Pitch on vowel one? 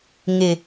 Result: low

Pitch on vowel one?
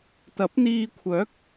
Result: rising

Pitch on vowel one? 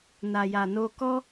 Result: low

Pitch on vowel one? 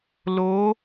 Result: rising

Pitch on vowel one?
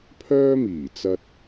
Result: high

